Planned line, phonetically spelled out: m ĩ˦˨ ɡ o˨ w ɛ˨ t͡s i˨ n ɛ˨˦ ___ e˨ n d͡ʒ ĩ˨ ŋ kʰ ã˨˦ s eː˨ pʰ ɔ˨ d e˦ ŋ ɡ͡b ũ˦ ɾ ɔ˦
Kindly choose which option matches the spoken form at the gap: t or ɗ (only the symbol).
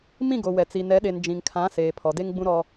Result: ɗ